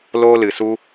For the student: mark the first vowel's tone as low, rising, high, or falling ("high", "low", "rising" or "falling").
high